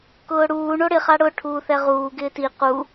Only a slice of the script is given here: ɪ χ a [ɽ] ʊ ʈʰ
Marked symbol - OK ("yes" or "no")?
yes